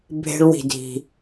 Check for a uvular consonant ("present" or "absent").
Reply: absent